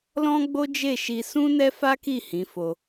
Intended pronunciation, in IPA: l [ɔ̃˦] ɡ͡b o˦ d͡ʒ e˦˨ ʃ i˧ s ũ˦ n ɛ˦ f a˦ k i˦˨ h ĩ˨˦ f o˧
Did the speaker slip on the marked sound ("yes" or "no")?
no